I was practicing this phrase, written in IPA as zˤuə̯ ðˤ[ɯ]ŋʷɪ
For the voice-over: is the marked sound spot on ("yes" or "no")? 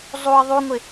no